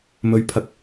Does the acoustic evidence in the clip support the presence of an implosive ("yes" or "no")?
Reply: no